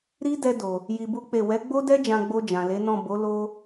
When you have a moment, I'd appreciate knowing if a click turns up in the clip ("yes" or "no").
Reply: no